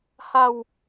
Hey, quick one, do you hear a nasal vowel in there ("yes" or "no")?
no